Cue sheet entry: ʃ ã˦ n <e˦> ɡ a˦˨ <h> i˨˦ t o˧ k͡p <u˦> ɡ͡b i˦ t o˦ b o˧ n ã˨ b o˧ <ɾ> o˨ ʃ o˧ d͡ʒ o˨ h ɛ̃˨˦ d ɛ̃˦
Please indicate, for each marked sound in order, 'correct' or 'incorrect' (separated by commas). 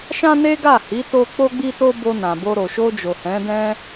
correct, correct, incorrect, correct